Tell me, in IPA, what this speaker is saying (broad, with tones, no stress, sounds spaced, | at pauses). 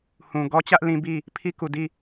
h ũ˨ ɡ ɔ˦ t͡ɕ ä˦ ʔ l ĩ˦ b i˦˨ | pʰ i˦ k u˨ d i˦˨